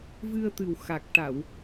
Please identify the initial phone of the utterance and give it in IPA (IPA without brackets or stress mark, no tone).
v